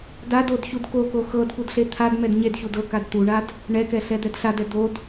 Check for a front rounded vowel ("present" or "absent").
absent